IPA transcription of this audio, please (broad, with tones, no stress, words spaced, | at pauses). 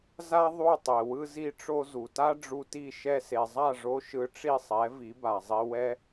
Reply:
za˥ ðˤu˥˩ tˤe˩wɯ˧zi˧ʈ͡ʂo˧ zu˩ta˥ ɖ͡ʐu˧ti˥˩ ʃɛ˧se˩zˤa˥˩ʐo˧ ʃɯ˧ʈ͡ʂi˥˩sˤɛ˩˥ vi˩˥ba˩zˤi˧ wɛ˥